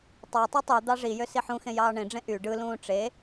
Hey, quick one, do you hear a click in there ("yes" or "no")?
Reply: no